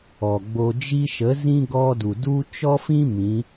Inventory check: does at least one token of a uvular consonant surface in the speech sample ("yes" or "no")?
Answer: no